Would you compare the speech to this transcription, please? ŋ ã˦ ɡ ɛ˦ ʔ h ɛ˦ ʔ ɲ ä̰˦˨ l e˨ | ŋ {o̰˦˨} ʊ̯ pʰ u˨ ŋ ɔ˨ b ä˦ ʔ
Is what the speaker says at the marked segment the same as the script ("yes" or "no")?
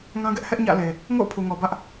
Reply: yes